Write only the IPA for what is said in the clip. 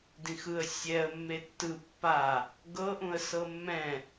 d ĩ x ɯ ə̯ sʲ ɛ ə̯ mː e tː ɯ pː a | ɡ ɤ ʔ ũ ə̯ s ɤ mː ɛ̃

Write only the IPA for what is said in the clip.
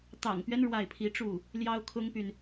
t̪ ɑ̰˨˩ ŋ p ɥ ɛ˦ n ɻ w a˥˩ ɪ̯ pʰ i˧˥ ʈ͡ʂ u˥˩ | l j ɑ˥ ʊ̯ kʰ ʊ˥ ŋ p y˨ n

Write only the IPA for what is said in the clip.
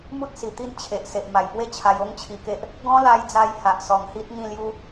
m u˦ t̚ s i˨˩ t̪ i˥˧ n t͡ɕʰ e˨ ʔ s e˨ ʔ m a˨˩ j p w e˥˧ t͡ɕʰ a˧ j o˦ ŋ t͡ɕʰ i˧ k e˦ ʔ | ɡ ɔ̃˦ l a˧ j d͡z a˧ j h a˨ ʔ s ɔ˨˩ ŋ h i˦ t̚ ŋ ĩ˥˧ l j u˦

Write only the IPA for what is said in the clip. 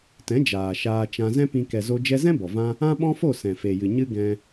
t ɛ̃˨˦ d͡ʒ aː˨ ʃ aː˧ t͡ʃ ã˧ z ɛ̃˦ p ĩ˧ k ɛ˨ z o˧ d͡ʒ ɛ˧ z ɛ̃˦ b ɔ˨ v ã˦ | ã˦ ɓ ɔ̃˦ f o˦˨ s ɛ̃˨ f e˨ j ɨ˨ ɲ ɨ˦ ɡ ɛ̃˧

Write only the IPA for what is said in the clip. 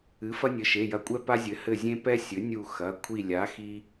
ɨ˩˥ f ɐ˦ nʲ ɘ˩˧˩ ʃ e˩˧˩ j ɐ˧˩ kʷʼ ɛ˦ p a˦ zʲ ɘ˩˥ h ɘ˧˩ zʲ ẽ˦ p ɛ˦ sʲ ɘ˩˥ nʲ u˧˩ x ɐ˩˧˩ kʷʰ i˧˩ lʲ a˩˥ x i˦

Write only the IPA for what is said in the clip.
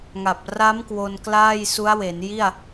ŋ a˨˩ p̚ r a˦˥ m k w o˧ n k l aː˥˩ j s u˦˥ a̯ w e˩˦ n j i˥˩ a̯

